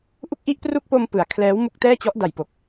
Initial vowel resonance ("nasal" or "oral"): oral